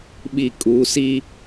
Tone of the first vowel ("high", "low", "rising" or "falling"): falling